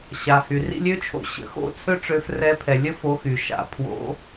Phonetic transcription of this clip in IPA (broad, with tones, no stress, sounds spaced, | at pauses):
ɕ a˩ h y˩ r ḭ˦ lʲ ø˦ t͡ʃʰ o̰˨˦ ɕ ə̰˨˦ x o̰˥˨ t͡sʰ ø˦ ʈ͡ʂ ø˨˦ f r ɛ˨˦ pʰ ɛ˩ lʲ ə˦ f o˨˦ x y˩ ʃ a̰˩ pʰ w o̰˨˦